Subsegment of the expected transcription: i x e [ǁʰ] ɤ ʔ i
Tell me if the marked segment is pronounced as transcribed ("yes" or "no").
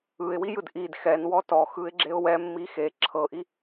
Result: yes